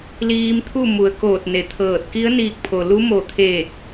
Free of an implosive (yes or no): yes